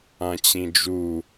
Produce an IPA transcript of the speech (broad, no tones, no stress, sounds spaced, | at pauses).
ã t͡ɕ ĩ d͡ʒ u